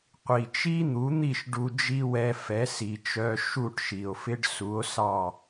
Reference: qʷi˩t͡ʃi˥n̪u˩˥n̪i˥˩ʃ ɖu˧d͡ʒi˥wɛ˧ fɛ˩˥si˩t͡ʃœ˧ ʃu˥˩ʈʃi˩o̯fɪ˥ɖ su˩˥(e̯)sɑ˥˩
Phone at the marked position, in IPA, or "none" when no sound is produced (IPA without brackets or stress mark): o̯